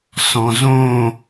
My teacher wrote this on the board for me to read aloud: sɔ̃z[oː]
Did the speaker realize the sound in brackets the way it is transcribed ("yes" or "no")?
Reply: no